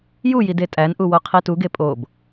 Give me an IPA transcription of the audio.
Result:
j u j i d e tʼ æ n ʔ u w o qʰ i t u ɡ e pʼ o b

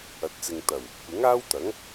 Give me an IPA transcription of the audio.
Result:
ɐ˨ t̚ t͡s ɪ˨ ŋ t̪ ɐ˨˩ w | kʷ ɪ˨˥ ŋ aː˥ w t̪ ɐ˨˥ ŋ

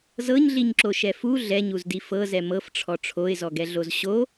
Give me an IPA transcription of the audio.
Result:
z ɤ ɲ ɮ i ɲ ǁ o ʃ ɛ f u ɮ ɛ ɲ u z d i f ɤ z ɛ m ɤ f ʈ͡ʂʰ ɔ ʈ͡ʂʰ o ɪ̯ z ɔ ɡ ɛ ɮ o z ɕ o

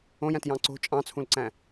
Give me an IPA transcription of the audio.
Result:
õ j æ̃ t j ɑ̃ ǀ o̤ t͡ʃʼ ɑ̃ t͡sʰ ũ l ǀ æ̃

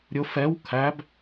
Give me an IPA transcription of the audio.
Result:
ɾʲ ʊ f ɛ w kʰ æ b

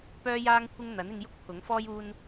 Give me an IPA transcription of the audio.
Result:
p œː˥ j aː˥ ŋ kʷʰ ɪ˥ ŋ n̪ ɐ˨˥ n ɪ˧ ŋ j ʊ˥ k̚ pʰ ʊ˨˥ ŋ f ɔː˥ j uː˧ n

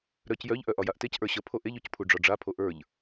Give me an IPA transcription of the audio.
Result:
ɾ œ c j œ ʎ ʔ œ ʔ ɒ j a ʔ t e c ʔ ə˞ ɕ ə pʰ o ʔ e ʎ o c pʰ u ɖ͡ʐ ɒ ɖ͡ʐ a pʰ o ʔ ə˞ ʎ

